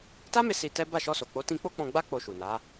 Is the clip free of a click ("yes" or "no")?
yes